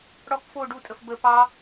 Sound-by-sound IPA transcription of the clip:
ɽ ɔ k f o ɖ u tʼ ə f b ə p ɑ

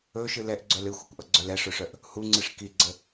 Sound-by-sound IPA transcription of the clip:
ɵ ʃ ɨ l ɛ ʔ ɡ͡ǀ œ l ɨ xʷ ɨ kʷ ʔ ʌ ɡ͡ǀ œ l ɛ ʂ ɵ ʂ œ ʔ | h u ŋ͡ǀ ɨ ʂ k i ɡ͡ǀ ə

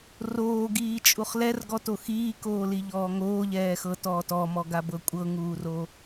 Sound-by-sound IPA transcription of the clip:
r oː ɡ iː t͡ʃʼ u χ l ɛ r ɡ ɔ t o x iː k oː l i ʎ ɔː ŋ oː ʎ ɛː x ɤ t ɔː t ɔ m ɔ ɡ a b ɤ kʷʼ ɤ ŋ uː r o

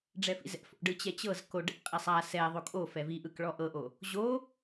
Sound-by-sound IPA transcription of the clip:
ɖ͡ʐ ɛ f ḭ z ɛ̰ f o̰ ɖ ɯ t͡ɕ ɛ t͡ɕ ɤ z k o ɖ ɛ̰ qʼ e sˤ a s ɛ ðˤ o kʼ o f ɛ v i ʔ ɯ k ɭ ɔ ʔ ɤ ʔ o | ʑ o

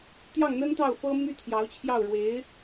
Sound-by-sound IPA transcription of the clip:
t̪ j ɑ˥˩ ŋ n̪ ə˥ n t̪ ɑ˥˩ ʊ̯ f ɤ˥ m y˥ t̪ʰ j ɑ˧˥ ʊ̯ t͡ɕʰ j ɑ˥˩ ʊ̯ ɻ w e˧˥ ɪ̯

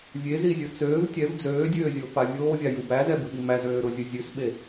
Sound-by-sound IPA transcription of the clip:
vʲ e z i zʲ o t͡s øː v tʲ ɛ v d͡z øː dʲ øː zʲ o f a vʲ oː vʲ a j u b æ z ɛ b ʉ ɓ i m æ z øː ɾ ʊ zʲ u zʲ ʉ s ɓ e

